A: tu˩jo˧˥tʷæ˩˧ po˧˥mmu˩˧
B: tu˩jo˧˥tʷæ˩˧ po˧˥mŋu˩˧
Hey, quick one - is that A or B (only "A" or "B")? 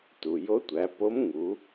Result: B